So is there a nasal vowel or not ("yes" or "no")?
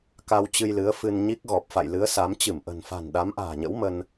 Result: no